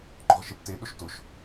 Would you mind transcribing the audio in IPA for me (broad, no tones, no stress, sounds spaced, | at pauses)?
ŋ͡ǃ ɔ̤ ʁ ʃ ɪ p t e ɗ ʊ ʃ t ʊ ʃ